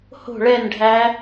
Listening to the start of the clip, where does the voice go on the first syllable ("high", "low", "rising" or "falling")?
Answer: falling